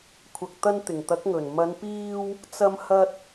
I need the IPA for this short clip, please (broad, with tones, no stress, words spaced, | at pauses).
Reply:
kʷʰɐ˨k̚t̪ɐ˧n t̪ɪ˨˩ŋt̪ɐ˨˥k̚ŋɵ˨˩n mɐ˨˧npiː˧w | t͡sɐ˧mhɐ˧t̚